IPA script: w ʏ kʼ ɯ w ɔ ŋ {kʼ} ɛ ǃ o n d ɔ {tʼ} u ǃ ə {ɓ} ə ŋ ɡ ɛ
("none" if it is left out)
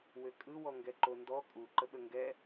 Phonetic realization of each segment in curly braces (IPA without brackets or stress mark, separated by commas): ɡ, kʼ, ɓ